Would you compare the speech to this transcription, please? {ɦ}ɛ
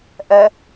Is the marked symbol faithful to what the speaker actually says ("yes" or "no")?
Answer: no